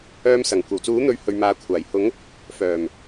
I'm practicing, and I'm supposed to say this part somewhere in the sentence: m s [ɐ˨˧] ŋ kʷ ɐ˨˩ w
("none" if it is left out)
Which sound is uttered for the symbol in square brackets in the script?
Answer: ɐ˨˩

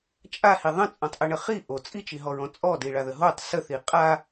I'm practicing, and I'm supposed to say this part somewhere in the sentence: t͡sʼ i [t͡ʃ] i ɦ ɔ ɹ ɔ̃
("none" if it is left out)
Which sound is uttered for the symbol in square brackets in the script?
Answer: t͡ʃ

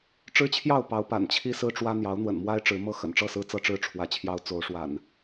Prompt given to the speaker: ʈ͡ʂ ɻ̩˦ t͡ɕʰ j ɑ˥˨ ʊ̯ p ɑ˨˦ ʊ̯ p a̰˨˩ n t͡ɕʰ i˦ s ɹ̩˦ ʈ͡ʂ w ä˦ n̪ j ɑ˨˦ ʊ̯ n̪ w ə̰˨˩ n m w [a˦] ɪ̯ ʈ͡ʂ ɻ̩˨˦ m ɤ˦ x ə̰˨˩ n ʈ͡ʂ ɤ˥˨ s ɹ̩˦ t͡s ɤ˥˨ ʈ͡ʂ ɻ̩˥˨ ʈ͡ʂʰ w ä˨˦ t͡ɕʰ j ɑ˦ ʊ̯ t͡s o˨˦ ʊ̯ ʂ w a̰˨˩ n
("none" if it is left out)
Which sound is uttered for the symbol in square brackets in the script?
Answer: a˦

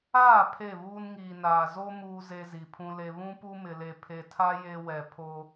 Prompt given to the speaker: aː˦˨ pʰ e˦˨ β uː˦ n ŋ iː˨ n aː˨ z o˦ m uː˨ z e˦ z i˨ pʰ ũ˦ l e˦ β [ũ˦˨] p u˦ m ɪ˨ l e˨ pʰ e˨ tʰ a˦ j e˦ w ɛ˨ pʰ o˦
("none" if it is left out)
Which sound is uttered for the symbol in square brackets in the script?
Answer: ũ˦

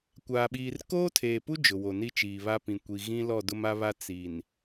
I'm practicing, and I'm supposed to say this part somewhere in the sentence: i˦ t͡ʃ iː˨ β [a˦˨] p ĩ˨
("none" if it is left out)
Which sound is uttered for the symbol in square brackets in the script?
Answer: a˦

